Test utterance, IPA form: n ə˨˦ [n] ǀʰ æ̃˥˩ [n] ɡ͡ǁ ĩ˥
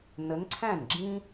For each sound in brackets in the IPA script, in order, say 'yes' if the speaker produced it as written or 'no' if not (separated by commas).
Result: yes, yes